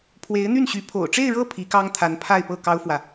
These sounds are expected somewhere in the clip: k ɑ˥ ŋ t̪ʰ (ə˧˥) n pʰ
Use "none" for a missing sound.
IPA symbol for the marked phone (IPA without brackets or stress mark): a˧˥